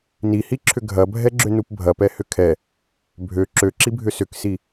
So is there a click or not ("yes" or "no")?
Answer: yes